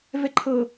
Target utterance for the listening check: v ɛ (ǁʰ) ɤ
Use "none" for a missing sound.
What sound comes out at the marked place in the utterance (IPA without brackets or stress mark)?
ǃʰ